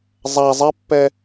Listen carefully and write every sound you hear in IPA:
zˤ a zˤ ɛ pː ɛ

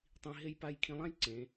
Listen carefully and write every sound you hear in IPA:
tˤ ĩ˧ ɦ e˥˧ j p a˥˧ j kʰ ĩ˧ lˠ ã˥ j ǀ ẽ˩˧

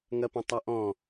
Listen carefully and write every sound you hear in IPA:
ŋ ɐ p ɐ̃ tˤ a ʔ ɔ̃

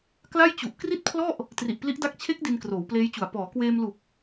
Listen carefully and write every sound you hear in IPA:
k l a˥˩ j t͡ɕ u˨˩ ʔ k r i˥˩ t̚ pʰ l ɔ˥˩ ʔ | t r i˨˩ ʔ p l i˦˥ ʔ d a˦˥ k̚ t͡ɕʰ e˦˥ k̚ d i˧ n k r oː˩˦ w p l eː˦˥ j t͡ɕ u˨˩ a̯ p ɔː˩˦ k w eː˧ m l u˨˩ k̚

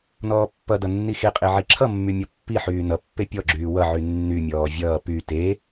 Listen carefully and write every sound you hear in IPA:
n ɔː pː ʌ d ʌ nː i x e qʼ e ʕ i ǁʰ ʌ mː y mʲ ɔ pː i ħ yː n ʌ pː e pʲ ɔ ɡ͡ǁ yː w ʌ ʕ y nː y mʲ ɔː vʲ ʌː p y t e

